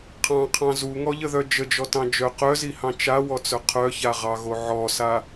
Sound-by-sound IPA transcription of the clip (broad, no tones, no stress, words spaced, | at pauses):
qʰɑ̃qʰɑ̃ zuŋɔʎəðœ d͡ʒəd͡ʒɔtɑ̃ d͡ʒœ qœzihɑ̃ t͡ʃawɔt͡sœ qʰœçaʁɑɣo ʕɔsa